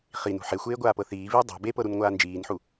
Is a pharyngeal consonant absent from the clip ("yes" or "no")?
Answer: no